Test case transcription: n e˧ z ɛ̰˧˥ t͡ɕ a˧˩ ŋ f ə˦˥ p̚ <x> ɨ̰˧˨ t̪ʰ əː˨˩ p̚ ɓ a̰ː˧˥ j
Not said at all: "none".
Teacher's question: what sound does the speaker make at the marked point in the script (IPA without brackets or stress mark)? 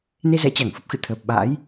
x